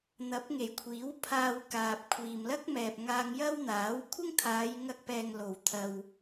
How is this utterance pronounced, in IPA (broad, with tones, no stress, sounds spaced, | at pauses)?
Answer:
n̪ ɐ˨˥ p̚ ŋ e˨˩ j kʷʰ iː˨˥ w pʰ aː˧ w k aː˨ p̚ kʷʰ iː˨ m l ɐ˥ k̚ m ɛː˨ p̚ ŋ aː˧ ŋ j ɐ˥ w n̪ aː˨˥ w kʷʰ ɪ˥ ŋ t̪ʰ aː˨˧ j ŋ ɐ˧ k̚ p ɛː˨ ŋ l o˨ w t̪ʰ ɐ˧ w